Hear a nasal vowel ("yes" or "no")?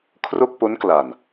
no